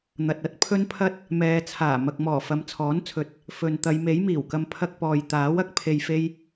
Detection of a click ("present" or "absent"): absent